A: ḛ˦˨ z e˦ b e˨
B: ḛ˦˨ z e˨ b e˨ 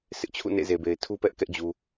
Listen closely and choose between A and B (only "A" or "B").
B